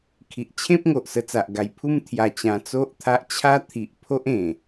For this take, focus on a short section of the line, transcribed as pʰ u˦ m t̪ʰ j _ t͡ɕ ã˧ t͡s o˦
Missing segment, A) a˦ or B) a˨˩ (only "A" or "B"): B